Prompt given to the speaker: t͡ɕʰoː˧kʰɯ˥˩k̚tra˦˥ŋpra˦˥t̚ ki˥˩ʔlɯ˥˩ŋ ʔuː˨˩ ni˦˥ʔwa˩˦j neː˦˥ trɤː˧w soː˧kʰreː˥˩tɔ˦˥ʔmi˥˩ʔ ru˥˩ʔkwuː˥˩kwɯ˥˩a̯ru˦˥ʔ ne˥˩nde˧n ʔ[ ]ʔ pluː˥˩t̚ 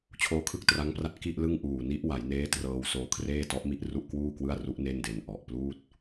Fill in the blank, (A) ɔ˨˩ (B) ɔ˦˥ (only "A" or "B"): A